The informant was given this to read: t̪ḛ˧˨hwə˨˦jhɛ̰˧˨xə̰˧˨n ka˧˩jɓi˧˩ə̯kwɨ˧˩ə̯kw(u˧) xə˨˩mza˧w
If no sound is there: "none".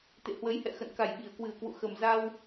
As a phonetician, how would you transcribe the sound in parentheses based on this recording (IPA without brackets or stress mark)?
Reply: ṵ˧˨